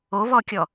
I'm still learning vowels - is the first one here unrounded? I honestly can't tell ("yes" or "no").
no